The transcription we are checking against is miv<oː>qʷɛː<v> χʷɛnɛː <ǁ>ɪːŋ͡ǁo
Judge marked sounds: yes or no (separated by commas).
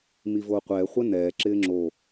yes, no, yes